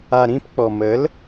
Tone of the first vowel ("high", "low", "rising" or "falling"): low